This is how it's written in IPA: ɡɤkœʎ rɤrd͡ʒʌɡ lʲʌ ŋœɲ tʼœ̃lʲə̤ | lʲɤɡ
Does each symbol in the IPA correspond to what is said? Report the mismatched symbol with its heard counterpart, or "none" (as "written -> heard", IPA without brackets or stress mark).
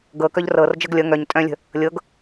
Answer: none